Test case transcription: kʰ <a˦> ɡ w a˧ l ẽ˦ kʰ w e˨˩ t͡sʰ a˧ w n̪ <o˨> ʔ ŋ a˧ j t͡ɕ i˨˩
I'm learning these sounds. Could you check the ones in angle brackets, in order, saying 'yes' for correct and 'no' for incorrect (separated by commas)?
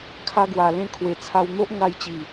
yes, no